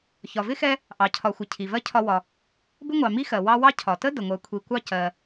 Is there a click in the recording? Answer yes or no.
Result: no